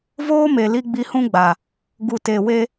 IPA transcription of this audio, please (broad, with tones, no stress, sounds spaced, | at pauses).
v oː˦ m e˨ l i˧ ɡ͡b i˧ h ũ˦ ɡ͡b a˨ | ɡ u˨ t e˨ w e˧